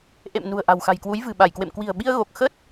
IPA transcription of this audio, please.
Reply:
ʔ ḛ˧˨ m n ṳ˨˩ ə̯ ʔ a̤˨˩ w x a̤˨˩ j k w u˨˦ j v ɨ̤˨˩ ɓ a˧˩ j k w ḛ˧˨ m k w i̤˨˩ ə̯ ɓ i˧ ə̯ ɣ o˨˩ k̚ x ə˦˥ t̚

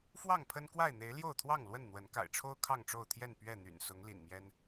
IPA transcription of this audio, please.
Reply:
f w ɑ˥˨ ŋ pʰ ə˦ n k w a˥˨ ɪ̯ n̪ e˨˦ ɪ̯ l j o˥˨ ʊ̯ t̪ʰ w ɑ˥˨ ŋ l w ə˥˨ n n̪ w ə˨˦ n k a̰˨˩ ɪ̯ ʈ͡ʂʰ o˦ ʊ̯ kʰ ɑ˥˨ ŋ ʈ͡ʂ o˥˨ ʊ̯ t̪ʰ j ɛ˥˨ n p ɥ ɛ˥˨ n̪ y̰˨˩ n s ʊ˨˦ ŋ l ḭ˨˩ n m j ɛ˦ n

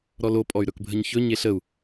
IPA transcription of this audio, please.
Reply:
ɾ ɔ l o pʼ ɔ y̯ ɾ ɵ k bʱ ə ɲ ç ɵ ɲ e ɬ ə u̯

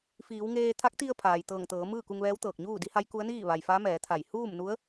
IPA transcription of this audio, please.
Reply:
f iː˩˧ w ŋ eː˧ t̪ʰ a˧˥ k̚ t̪ i˧ ə̯ pʰ aː˩ j t̪ ɤː˧˩ ŋ t̪ ɤː˩˧ m ɯː˥˨ k u˧ ŋ ʋ ɛː˧˥ w t̪ ɤː˧˩ k̚ ɲ uː˥˨ d i˧˥ h a˧˥ j k u˧˥ ə̯ n iː˥˨ ʋ a˩ j f a˧˥ m ɛː˩˧ t̪ʰ a˧˩ j h uː˥˨ m n u˧˥ ə̯

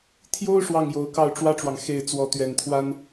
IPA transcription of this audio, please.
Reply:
t̪ʰ j o˥ ʊ̯ ʂ w ɑ˥˩ ŋ j o˧˥ ʊ̯ k ɑ˥˩ ʊ̯ ʈ͡ʂ w ä˥ ʈ͡ʂ w ɑ˨ ŋ x e˥˩ ɪ̯ t͡s w ɔ˧˥ t̪ ɥ ɛ˨˩ n t̪ʰ w a˥ n

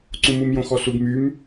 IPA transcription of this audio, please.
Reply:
ǀ ũ m u m j õ x ɔ s u ɡ m y m

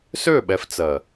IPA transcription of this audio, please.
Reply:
s ø˦˨ ɓ ɛ˨ f t͡s ɜ˨

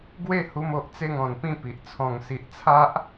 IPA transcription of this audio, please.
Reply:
ɡ w e˥˧ h u˧ m o˨ ʔ t͡s e˥˧ ŋ ɔ̃˨˩ n p ĩ˥˧ p i˨ ʔ t͡sʰ ɔ̃˨˩ ŋ s i˨ ʔ t͡sʰ a˦ ʔ

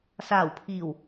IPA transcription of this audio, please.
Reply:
s aː˨˩ w pʰ iː˨˩ w

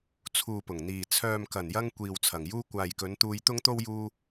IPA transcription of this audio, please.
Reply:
t͡sʰ uː˨ p ʊ˨˩ ŋ n̪ iː˨˩ t͡sʰ œː˨ m k ɐ˨˩ n j ɐ˧ ŋ kʷ iː˨ w t͡sʰ ɐ˨˩ ŋ j uː˥ kʷ aː˨ j k ɵ˨˧ n t̪ uː˧ j t̪ ʊ˥ ŋ t̪ o˥ w j uː˧

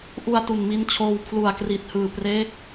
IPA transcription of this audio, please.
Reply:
ʔ u˧ a̯ t u˨˩ n m i˧ n t͡ɕʰ oː˧ w pʰ l u˨˩ a̯ k r i˨˩ t̚ h ɯː˨˩ p r eː˦˥ k̚

